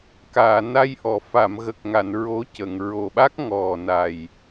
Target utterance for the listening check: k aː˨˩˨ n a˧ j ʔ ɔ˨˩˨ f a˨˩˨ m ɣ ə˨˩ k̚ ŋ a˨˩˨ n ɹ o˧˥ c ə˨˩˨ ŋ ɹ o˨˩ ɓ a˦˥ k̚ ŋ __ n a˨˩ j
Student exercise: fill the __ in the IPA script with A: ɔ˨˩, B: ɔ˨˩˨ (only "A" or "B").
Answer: A